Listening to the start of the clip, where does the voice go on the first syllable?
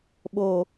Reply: low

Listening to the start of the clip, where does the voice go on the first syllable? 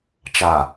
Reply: low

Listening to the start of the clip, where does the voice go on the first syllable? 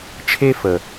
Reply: high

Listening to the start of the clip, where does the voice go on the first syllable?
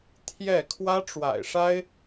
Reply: falling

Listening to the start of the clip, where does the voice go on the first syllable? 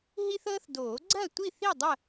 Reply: high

